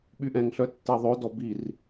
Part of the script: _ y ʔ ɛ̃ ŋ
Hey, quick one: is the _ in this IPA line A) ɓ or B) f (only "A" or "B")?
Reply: A